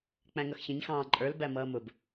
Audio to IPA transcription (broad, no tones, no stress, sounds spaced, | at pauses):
k͡p æ̃ ŋ ʌ x ç ə̃ ɲ x ɑ̃ː ǃʼ ə˞ l b æ m ʌː m ʊ b